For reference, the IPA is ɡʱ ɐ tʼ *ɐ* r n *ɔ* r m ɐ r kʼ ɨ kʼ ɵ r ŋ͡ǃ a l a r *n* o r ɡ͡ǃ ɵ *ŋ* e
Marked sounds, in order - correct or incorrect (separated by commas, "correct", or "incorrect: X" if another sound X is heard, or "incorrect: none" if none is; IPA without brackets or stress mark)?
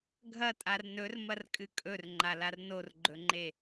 incorrect: a, incorrect: ɵ, correct, incorrect: ŋ͡ǃ